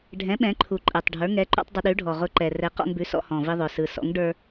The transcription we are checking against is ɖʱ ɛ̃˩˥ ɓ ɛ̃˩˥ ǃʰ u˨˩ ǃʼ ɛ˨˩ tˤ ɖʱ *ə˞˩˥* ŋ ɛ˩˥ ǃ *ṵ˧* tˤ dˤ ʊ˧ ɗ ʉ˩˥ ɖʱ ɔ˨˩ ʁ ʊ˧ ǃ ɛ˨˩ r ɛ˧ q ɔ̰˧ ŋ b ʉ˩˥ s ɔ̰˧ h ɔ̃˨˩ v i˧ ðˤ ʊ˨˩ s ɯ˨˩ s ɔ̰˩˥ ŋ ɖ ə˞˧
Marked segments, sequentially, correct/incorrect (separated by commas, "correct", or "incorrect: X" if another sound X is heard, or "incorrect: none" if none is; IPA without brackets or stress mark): correct, correct